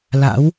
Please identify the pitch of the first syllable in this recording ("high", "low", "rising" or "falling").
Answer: rising